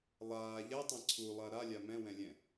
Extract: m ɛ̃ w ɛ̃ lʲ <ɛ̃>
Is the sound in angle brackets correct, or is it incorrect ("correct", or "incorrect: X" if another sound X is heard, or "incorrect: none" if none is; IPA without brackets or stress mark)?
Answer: correct